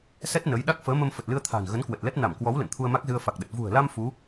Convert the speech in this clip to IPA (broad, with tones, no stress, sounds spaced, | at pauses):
s ɛ˦˥ t̚ n ə˨˦ j ɗ a˦˥ k̚ f əː˨˦ m ə˧ m f ə˨˩ t̚ l ɨ˧ ə̯ t̪ʰ a̤ː˨˩ n ɣ ə˨˦ n k w ə˨˩ t̚ l ɛ˦˥ t̚ n a˧˩ m k w ɔ˨˦ w l ə̰˧˨ n t̪ʰ u˧ ə̯ m a˦˥ k̚ z ɨ˧ ə̯ f a˨˩ k̚ ɗ ə˨˩ t̚ v ṳ˨˩ ə̯ l a˧ m f u˨˦